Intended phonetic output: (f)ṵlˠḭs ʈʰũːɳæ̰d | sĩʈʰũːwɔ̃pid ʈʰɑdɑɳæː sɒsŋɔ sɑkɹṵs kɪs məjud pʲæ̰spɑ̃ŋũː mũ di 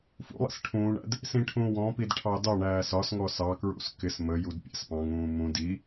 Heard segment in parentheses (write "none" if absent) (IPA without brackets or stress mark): f